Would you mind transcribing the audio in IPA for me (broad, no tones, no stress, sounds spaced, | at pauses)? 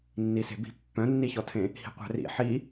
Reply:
nː i s e̤ b i̤ pː œ̃ nː i ç ɔ tʰ ẽ | h i̤ qʷ æ̤ r ḭ ħ i